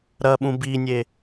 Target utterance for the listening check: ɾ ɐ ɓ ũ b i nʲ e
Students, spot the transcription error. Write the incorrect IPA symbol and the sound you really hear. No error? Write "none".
none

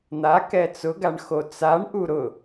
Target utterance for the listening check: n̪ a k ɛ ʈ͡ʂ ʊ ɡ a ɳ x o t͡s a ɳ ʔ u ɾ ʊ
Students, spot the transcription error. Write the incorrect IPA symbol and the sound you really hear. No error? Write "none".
ʈ͡ʂ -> t͡s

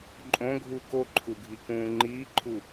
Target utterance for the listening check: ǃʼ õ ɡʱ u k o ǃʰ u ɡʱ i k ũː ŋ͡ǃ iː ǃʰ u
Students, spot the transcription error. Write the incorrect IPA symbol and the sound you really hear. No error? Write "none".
none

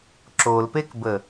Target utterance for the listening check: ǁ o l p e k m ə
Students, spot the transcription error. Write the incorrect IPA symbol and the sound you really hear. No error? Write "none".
m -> b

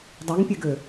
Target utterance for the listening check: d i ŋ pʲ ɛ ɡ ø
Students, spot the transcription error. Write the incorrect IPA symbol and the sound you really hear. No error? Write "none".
d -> dˤ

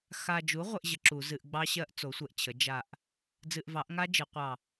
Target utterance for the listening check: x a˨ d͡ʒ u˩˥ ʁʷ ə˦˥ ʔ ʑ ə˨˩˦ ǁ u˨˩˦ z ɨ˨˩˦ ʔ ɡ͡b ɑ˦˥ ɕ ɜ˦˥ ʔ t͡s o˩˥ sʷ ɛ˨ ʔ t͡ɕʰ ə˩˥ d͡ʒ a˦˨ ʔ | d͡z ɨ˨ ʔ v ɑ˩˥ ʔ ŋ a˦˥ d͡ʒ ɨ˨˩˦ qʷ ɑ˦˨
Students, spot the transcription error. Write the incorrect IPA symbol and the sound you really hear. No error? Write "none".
none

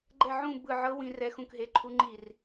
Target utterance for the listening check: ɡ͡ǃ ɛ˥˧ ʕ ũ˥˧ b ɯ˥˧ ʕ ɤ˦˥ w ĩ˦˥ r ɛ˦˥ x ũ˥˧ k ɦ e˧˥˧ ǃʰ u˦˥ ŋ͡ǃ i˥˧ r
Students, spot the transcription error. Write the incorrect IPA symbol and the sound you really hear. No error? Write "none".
none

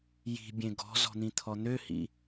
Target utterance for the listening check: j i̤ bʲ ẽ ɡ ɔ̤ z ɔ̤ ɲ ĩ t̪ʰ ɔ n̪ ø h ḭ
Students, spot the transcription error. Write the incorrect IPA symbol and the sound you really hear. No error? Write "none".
ɲ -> n̪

